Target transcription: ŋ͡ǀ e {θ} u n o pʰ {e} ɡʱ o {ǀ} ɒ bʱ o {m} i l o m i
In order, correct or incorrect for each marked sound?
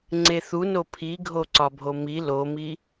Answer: correct, incorrect: i, correct, correct

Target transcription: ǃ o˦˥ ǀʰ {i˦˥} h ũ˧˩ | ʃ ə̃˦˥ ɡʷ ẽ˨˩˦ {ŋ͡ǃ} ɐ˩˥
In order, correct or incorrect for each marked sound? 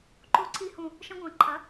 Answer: correct, incorrect: ǃʰ

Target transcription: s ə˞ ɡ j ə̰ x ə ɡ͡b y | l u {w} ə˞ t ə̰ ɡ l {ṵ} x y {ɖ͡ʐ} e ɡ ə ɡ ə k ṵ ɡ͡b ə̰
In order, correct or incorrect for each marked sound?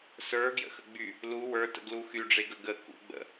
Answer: correct, incorrect: u, correct

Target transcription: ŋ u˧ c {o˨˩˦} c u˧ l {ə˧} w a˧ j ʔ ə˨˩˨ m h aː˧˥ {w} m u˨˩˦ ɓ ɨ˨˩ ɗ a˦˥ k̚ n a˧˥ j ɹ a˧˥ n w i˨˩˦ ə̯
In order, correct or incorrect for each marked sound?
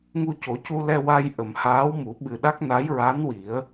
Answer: correct, incorrect: ɛ˧, correct

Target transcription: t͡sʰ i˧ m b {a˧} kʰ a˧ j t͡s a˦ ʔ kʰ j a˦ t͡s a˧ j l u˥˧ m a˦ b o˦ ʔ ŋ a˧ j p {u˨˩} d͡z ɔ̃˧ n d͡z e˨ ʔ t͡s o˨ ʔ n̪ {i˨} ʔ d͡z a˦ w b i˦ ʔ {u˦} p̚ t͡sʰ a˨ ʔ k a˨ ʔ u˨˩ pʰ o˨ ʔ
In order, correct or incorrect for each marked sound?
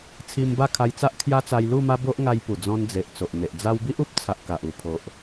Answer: incorrect: a˥˧, correct, incorrect: e˨, correct

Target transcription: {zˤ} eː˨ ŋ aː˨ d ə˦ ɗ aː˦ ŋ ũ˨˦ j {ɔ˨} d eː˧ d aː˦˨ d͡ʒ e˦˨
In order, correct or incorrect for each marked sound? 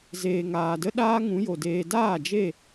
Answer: incorrect: z, incorrect: o˨

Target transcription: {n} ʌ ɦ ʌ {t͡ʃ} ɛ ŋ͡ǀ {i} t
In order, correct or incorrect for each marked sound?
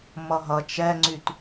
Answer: incorrect: m, correct, incorrect: y

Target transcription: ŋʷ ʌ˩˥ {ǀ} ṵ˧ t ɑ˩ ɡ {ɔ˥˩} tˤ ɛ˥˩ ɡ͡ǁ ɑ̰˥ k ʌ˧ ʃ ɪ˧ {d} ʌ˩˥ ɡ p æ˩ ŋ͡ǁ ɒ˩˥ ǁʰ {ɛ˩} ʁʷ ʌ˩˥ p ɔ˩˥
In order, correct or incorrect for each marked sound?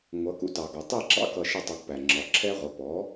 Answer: incorrect: k, incorrect: ɔ˩, incorrect: tˤ, incorrect: ɛ˥

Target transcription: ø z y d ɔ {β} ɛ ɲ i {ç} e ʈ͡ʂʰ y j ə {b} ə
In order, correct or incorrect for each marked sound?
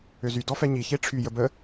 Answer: incorrect: f, correct, correct

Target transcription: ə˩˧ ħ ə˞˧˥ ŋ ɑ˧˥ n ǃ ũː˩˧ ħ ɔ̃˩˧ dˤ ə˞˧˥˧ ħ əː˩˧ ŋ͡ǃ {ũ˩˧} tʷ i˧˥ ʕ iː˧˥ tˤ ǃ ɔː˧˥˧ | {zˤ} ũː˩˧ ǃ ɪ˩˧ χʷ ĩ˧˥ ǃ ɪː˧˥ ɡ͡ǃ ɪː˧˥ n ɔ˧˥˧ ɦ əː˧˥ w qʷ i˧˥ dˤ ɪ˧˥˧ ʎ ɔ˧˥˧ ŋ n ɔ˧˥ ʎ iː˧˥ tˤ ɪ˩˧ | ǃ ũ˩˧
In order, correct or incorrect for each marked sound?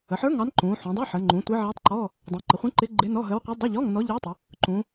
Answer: correct, incorrect: dˤ

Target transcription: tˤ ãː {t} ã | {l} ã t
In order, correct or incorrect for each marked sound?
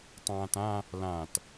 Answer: correct, correct

